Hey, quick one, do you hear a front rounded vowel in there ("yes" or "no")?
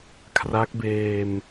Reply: no